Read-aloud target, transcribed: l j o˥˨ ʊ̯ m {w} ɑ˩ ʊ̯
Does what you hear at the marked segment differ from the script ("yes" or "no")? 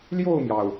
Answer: yes